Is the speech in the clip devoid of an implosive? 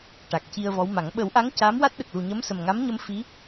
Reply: no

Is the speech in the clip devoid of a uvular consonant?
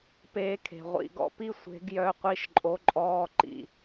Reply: no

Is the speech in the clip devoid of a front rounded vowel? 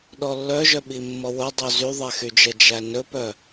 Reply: no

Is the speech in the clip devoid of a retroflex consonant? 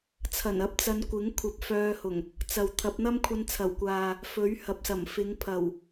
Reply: yes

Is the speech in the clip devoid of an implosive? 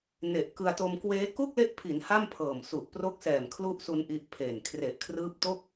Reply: yes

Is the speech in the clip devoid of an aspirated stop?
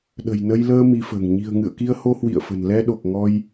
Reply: yes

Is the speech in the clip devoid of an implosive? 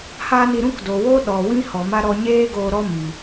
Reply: no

